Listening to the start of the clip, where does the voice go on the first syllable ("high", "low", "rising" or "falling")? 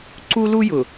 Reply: high